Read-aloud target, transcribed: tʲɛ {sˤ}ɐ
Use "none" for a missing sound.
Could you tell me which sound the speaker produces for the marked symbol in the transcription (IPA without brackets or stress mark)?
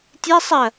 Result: sˤ